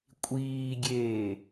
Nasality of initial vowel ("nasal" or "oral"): oral